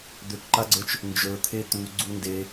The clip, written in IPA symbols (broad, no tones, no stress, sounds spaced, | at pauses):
d̪ ø k ǃ a ɡ͡ǀ ə˞ t͡ʃ | n d͡ʒ ə˞ t̪ʰ e t̪ u ɡ͡ǀ u n d e